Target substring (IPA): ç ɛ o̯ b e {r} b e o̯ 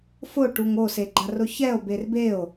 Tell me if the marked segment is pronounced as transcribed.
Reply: yes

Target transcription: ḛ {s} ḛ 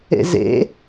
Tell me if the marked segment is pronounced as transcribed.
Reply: no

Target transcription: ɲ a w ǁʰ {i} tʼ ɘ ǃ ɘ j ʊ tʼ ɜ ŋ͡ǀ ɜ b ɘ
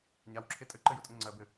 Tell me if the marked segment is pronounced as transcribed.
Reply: no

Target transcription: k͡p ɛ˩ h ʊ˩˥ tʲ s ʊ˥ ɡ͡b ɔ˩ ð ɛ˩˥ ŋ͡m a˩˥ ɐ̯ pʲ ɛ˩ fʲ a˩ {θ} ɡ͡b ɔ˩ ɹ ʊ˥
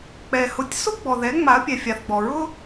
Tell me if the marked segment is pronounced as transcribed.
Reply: yes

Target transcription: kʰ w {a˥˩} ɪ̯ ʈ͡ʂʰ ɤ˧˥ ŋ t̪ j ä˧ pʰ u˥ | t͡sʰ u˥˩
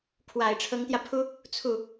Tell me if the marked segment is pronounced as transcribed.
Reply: no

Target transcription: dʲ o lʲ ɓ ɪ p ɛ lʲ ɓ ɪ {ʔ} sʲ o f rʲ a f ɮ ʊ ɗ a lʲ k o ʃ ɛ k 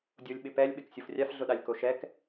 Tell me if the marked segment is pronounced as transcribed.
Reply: no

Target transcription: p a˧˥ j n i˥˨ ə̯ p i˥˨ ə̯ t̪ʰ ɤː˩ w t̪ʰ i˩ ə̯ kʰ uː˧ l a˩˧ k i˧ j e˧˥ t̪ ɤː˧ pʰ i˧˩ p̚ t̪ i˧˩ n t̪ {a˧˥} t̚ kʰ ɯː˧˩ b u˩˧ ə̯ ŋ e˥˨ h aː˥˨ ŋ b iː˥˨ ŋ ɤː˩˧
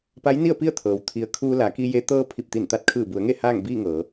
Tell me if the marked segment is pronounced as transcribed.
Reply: yes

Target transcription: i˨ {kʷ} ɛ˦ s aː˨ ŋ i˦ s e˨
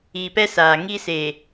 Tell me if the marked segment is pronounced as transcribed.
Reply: no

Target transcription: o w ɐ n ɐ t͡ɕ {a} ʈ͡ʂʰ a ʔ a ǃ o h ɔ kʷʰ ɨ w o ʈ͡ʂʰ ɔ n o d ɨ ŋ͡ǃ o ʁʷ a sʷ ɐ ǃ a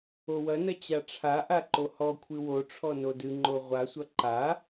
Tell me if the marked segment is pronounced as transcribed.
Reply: yes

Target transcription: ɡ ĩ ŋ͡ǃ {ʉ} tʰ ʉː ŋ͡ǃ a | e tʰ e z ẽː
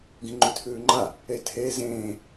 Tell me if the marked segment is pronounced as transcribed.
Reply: yes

